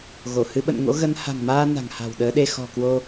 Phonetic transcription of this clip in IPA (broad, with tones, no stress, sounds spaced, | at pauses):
ɣ o˧˩ h ɨ˧ ɓ ə̰˧˨ n ŋ o̰˧˥ ɣ ə˨˦ n h a̤˨˩ ŋ m aː˧ n a̤˨˩ ŋ h a̤˨˩ w ɗ əː˨˦ ɗ e˧ x ɔ̤˨˩ k w o˧